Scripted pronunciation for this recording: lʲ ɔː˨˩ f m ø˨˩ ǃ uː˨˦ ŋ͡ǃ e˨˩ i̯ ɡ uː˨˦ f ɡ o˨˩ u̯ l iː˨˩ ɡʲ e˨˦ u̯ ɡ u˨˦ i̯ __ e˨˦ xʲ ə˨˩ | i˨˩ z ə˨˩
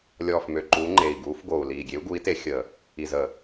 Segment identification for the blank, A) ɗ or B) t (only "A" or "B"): B